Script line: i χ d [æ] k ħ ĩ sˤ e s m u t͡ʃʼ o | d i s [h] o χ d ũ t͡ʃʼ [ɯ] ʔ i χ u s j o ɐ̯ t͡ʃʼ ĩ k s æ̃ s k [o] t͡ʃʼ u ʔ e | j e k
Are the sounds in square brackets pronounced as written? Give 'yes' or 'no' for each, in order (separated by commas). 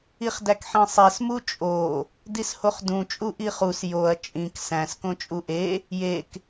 yes, yes, no, no